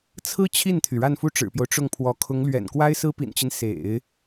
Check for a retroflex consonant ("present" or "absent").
present